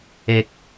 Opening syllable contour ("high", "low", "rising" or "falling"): low